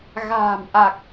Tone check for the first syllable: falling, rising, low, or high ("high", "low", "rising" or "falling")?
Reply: low